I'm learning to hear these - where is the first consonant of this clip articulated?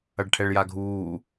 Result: retroflex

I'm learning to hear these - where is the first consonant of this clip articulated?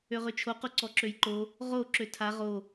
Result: uvula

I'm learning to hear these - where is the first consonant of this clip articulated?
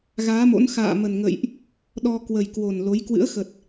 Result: velum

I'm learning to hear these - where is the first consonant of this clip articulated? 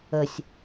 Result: tongue tip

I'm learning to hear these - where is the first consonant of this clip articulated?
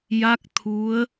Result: palate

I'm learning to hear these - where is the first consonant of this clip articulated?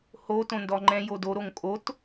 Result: throat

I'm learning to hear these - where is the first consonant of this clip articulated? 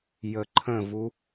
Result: palate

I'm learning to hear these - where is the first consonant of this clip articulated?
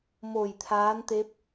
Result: lips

